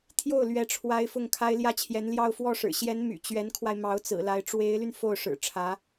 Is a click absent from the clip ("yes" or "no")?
yes